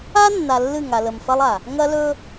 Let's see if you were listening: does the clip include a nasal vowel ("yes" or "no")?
no